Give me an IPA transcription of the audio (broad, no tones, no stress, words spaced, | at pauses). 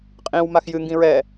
qʼĩw maxjɨ ŋɡĩɹɛ